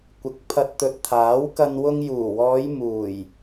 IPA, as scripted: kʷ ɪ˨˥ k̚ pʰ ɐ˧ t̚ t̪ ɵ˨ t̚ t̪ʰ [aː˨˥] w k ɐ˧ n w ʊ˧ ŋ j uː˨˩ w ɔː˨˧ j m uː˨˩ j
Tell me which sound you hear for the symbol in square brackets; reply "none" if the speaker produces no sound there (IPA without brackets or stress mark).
aː˨˥